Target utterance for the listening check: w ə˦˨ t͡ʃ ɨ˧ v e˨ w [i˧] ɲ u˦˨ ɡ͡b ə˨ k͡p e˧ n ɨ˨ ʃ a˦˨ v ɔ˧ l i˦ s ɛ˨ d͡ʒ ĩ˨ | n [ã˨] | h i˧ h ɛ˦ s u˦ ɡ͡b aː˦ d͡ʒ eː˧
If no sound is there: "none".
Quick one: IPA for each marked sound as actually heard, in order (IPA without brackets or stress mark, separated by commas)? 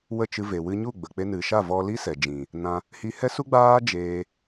ɨ˧, ã˧